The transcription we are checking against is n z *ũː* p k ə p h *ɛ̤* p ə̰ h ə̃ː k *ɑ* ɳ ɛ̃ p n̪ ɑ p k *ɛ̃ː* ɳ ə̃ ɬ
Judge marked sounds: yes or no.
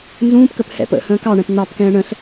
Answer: yes, no, yes, yes

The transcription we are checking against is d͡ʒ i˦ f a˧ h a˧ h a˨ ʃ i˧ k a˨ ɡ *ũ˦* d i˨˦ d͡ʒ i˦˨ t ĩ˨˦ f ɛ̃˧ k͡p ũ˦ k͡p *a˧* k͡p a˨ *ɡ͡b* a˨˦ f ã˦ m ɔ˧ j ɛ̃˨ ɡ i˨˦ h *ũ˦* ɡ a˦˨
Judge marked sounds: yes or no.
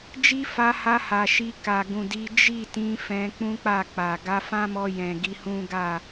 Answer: no, no, no, yes

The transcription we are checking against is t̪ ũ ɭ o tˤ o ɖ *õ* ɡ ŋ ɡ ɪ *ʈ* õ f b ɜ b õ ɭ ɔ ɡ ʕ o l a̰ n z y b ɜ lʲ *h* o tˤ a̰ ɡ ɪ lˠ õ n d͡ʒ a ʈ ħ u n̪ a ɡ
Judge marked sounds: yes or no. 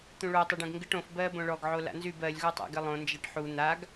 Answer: yes, yes, no

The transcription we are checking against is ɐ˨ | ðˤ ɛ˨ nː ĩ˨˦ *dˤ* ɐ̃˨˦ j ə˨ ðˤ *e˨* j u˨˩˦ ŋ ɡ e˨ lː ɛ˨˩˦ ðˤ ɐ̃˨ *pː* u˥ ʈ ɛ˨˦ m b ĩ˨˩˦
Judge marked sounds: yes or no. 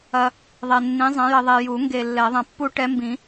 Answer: no, yes, yes

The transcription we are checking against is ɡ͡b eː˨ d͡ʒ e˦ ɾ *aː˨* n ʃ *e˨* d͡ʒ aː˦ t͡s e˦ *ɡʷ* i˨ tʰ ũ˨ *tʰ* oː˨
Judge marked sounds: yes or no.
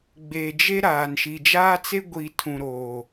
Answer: yes, no, yes, no

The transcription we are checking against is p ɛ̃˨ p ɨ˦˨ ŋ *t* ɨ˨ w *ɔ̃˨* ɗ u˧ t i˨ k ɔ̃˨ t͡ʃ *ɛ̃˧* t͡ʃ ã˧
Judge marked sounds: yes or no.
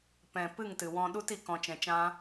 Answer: yes, yes, no

